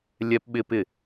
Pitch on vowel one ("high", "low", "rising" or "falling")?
high